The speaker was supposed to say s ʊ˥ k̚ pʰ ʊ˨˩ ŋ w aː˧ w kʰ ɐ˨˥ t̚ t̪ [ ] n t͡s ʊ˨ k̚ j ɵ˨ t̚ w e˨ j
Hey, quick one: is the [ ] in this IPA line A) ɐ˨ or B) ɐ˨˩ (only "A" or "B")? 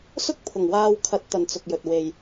A